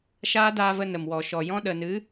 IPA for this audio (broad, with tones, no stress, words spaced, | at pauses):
ʃaː˦daː˧və˧ nə˨mwɔ˨ʃɔ˨jɔ̃˦ ɗə˨nɨ˨˦